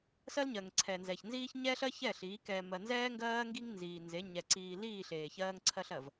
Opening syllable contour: high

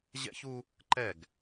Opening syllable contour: high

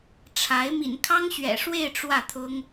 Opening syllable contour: rising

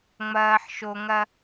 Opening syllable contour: low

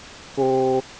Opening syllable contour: high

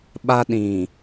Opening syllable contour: high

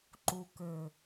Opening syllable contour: low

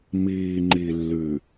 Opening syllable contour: low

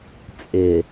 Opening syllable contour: low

